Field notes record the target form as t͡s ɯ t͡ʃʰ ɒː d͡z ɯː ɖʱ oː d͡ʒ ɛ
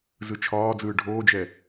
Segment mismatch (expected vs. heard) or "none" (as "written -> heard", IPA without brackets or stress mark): t͡s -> z